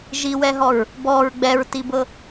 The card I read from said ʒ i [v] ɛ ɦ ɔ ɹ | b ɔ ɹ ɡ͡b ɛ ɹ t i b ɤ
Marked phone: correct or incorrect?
incorrect